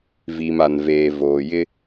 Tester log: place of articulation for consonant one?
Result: labial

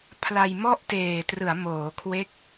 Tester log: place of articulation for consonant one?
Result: labial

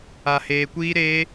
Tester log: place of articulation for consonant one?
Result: glottal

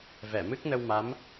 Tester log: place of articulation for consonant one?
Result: labial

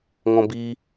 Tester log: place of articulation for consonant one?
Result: velar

